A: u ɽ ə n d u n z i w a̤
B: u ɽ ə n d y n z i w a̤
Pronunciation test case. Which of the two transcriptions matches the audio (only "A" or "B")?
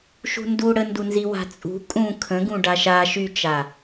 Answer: A